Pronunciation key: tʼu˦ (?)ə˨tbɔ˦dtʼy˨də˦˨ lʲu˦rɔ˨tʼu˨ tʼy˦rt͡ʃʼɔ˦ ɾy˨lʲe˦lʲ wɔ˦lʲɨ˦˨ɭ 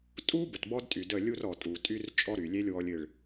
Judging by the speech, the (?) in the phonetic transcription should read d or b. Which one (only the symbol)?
b